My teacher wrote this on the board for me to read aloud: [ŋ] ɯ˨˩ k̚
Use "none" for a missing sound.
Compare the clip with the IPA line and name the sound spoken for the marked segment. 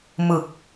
m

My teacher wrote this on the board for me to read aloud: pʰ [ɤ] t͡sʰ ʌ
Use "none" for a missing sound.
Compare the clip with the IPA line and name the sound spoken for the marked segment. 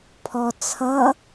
ɔ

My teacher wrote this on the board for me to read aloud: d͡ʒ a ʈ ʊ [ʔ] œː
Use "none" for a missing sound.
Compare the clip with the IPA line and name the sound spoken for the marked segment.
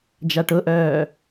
ʔ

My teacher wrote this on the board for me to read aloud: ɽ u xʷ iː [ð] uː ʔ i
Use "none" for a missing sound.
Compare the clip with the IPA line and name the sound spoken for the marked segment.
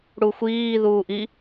ð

